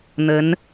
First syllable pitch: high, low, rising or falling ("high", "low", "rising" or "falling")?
rising